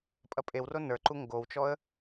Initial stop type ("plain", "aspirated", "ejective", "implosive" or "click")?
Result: ejective